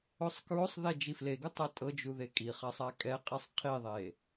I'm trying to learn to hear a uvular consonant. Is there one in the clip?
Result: yes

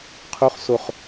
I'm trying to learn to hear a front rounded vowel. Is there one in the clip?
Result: no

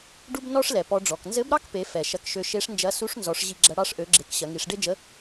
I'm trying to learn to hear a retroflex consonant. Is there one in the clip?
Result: yes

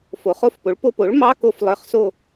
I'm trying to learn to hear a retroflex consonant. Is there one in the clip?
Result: yes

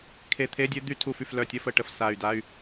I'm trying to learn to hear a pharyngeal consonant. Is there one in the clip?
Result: no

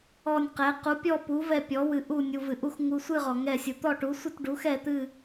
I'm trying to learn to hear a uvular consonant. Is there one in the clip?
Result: yes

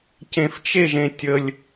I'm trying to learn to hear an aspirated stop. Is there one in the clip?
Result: no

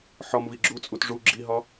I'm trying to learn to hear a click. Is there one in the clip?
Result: yes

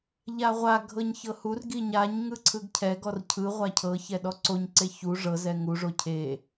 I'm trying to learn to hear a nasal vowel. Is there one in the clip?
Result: no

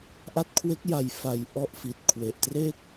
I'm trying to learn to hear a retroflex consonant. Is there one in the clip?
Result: no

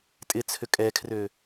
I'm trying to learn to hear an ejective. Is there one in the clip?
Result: yes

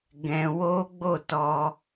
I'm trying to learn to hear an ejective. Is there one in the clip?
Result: no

